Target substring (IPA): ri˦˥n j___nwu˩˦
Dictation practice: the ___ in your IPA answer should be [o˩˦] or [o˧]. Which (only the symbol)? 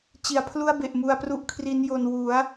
o˧